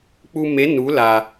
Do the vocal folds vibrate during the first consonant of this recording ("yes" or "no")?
no